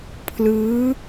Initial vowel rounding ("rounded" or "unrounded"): unrounded